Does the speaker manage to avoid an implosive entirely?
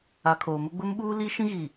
no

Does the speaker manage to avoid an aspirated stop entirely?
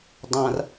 yes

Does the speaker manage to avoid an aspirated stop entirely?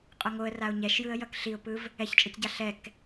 yes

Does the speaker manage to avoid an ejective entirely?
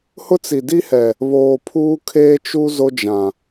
yes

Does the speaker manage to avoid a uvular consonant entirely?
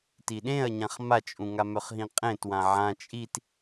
no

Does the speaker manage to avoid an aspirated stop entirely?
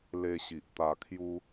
no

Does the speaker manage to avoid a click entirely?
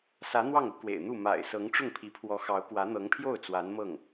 yes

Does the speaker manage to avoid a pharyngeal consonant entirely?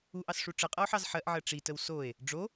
no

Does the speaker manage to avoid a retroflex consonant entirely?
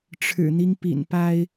no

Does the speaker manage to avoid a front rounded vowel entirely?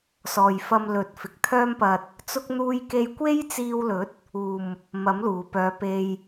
no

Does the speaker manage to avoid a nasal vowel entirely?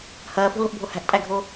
yes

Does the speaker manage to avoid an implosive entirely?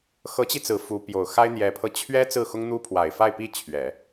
yes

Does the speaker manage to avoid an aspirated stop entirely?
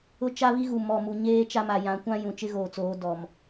yes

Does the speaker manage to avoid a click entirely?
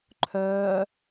no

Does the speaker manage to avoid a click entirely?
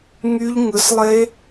yes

